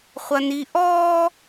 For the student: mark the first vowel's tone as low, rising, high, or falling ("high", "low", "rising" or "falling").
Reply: high